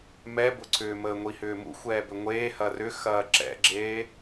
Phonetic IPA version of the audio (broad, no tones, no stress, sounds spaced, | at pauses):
m ɛ b ʊ ǀʰ ʏː m əː ŋʷ i h ʏː m ṵ xʷ ɛː b ʏ ŋʷ eː h ɐ r ʏ x ɐː ǁ ɛ̰ ɡ͡ǁ eː